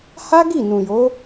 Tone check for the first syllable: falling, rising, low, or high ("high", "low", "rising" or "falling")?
high